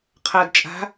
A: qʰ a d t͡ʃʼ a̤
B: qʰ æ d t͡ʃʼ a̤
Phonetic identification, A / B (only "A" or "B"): A